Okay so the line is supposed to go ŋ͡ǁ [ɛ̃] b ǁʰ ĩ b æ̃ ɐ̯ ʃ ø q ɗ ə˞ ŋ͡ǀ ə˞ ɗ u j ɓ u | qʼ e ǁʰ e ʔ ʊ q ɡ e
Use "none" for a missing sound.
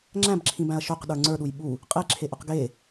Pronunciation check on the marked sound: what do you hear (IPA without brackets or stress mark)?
æ̃